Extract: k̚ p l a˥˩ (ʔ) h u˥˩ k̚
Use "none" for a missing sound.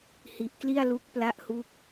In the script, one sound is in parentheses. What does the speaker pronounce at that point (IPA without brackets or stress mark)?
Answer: ʔ